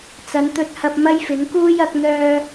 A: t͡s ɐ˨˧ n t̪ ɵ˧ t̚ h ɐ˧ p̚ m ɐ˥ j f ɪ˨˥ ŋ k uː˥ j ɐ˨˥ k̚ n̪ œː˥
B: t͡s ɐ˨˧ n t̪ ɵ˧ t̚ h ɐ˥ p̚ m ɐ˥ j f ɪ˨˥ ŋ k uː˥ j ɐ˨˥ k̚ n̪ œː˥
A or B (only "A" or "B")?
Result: A